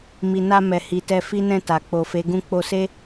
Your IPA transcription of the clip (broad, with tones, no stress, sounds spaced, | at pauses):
m i˨ n a˧ m ɛ˨ h i˨ t ɛ˧ f i˦ n ɛ̃˦˨ t a˨ k͡p o˨ f e˨˦ ɡ ũ˦ k͡p o˧ s e˦